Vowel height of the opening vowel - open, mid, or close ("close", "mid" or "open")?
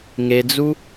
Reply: mid